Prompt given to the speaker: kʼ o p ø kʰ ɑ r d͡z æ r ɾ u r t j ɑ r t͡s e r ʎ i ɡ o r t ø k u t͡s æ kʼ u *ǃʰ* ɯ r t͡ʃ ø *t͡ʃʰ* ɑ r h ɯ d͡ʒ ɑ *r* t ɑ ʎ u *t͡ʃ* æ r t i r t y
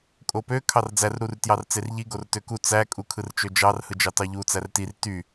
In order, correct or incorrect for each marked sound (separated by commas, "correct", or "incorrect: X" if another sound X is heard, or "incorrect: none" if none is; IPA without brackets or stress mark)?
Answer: incorrect: kʰ, incorrect: d͡ʒ, incorrect: none, incorrect: t͡s